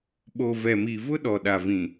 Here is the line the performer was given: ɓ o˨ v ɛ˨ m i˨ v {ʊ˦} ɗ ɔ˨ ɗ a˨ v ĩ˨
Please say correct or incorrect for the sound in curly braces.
correct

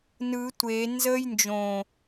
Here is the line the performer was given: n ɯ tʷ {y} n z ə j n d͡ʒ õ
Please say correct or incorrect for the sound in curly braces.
incorrect: e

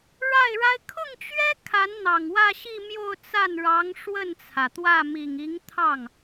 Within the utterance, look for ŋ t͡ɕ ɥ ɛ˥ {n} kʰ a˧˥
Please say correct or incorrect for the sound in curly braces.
incorrect: none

